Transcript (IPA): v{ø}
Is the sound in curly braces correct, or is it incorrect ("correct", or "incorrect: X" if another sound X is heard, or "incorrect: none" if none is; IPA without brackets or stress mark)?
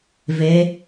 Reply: incorrect: ɛ